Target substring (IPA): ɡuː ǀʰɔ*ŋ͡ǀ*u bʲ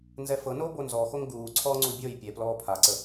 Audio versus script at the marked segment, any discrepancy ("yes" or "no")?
no